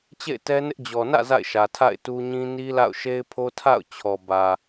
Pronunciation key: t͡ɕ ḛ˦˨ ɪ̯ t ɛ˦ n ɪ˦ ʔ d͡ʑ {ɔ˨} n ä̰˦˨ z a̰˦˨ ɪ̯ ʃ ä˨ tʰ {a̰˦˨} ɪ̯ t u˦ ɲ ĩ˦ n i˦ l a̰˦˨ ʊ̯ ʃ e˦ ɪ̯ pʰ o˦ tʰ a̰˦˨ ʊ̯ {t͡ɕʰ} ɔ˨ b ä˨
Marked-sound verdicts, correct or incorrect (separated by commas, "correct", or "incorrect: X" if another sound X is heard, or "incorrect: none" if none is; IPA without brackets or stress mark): correct, correct, correct